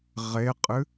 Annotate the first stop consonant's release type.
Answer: ejective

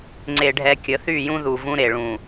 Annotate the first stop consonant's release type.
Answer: click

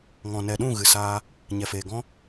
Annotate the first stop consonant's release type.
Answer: implosive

